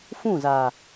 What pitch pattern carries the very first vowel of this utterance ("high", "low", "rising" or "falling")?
falling